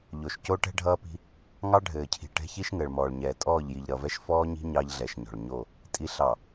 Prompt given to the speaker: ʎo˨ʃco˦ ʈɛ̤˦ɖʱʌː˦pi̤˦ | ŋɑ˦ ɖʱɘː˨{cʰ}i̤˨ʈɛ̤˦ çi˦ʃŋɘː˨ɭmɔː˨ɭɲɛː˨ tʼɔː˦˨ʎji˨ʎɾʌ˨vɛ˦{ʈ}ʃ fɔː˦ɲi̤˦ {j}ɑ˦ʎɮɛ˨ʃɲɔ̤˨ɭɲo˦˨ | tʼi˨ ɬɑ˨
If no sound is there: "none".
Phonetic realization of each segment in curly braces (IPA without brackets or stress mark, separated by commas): cʰ, none, ɲ